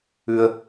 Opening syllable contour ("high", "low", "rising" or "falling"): low